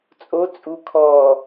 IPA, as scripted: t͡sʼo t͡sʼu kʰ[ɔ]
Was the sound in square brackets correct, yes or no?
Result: yes